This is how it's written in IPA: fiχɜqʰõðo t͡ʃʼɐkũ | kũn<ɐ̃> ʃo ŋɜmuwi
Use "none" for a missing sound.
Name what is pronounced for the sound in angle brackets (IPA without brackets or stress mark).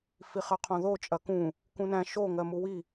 æ̃